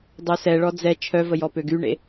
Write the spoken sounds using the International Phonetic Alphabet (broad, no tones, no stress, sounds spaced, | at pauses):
dˤ œ s ɛ ɭ ɔ d͡z ɛ t͡ʃʰ œ v ə j ɔ p ø ɡ y ɳ ḛ